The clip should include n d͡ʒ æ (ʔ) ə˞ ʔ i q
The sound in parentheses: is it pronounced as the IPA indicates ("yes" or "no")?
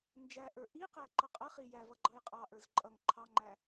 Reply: yes